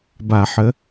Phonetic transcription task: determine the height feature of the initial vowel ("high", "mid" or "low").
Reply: low